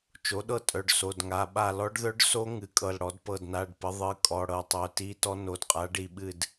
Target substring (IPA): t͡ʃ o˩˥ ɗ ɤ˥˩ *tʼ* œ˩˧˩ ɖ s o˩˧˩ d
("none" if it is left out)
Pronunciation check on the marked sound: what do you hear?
tʼ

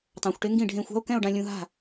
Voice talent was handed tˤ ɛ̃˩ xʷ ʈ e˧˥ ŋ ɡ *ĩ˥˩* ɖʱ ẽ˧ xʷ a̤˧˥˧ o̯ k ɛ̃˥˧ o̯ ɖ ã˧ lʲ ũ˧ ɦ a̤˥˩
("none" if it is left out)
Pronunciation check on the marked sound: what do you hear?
ĩ˥˩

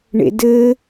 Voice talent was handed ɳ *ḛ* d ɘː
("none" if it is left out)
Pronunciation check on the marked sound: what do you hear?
ḛ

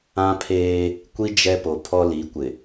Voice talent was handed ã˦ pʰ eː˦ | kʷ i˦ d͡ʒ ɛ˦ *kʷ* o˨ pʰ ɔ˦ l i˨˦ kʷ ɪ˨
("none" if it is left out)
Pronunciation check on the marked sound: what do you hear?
p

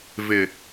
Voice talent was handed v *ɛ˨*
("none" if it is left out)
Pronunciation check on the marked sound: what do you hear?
ɪ˨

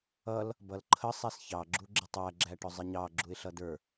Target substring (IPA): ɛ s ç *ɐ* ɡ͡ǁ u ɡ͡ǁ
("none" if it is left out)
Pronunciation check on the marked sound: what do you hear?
ɑ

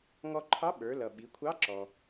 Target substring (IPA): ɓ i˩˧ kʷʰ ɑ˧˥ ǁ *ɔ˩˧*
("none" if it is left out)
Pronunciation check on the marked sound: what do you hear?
ɔ˩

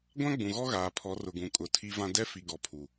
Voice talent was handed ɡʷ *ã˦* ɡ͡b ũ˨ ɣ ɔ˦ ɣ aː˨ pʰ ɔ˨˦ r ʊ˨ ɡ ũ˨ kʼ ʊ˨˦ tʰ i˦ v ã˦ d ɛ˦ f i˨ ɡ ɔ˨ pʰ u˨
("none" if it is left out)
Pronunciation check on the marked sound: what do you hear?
ã˦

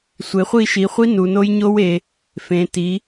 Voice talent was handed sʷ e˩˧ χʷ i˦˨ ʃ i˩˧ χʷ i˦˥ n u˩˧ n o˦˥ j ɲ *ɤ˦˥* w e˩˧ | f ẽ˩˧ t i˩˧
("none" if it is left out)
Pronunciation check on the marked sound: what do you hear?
o˦˥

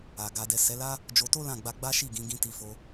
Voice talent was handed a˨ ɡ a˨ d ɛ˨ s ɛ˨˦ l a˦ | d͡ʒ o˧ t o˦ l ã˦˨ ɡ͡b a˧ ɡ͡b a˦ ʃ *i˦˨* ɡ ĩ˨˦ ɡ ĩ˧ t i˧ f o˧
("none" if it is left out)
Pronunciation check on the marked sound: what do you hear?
i˦˨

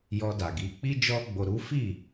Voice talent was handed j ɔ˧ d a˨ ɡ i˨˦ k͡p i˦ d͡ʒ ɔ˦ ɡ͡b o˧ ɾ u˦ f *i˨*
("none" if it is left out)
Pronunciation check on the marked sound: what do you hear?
i˦˨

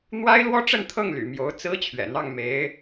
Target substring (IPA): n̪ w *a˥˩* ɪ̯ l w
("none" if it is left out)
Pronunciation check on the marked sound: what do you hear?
a˥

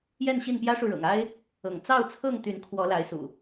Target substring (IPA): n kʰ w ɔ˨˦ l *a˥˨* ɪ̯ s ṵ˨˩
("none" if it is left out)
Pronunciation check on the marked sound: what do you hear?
a˨˦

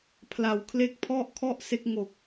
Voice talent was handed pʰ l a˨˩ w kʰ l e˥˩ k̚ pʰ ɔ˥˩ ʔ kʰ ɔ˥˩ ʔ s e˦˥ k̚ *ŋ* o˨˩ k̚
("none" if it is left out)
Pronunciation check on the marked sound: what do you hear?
ŋ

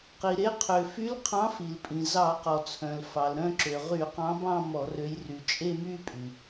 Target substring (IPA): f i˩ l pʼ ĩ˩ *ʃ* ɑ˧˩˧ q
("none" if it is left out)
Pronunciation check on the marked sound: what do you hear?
z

